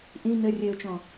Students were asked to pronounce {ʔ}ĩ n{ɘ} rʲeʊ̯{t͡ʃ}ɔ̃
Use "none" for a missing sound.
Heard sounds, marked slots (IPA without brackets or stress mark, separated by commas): ʔ, ɘ, t͡ʃ